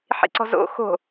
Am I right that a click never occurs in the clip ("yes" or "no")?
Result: no